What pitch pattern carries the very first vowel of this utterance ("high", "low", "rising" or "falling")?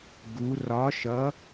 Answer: rising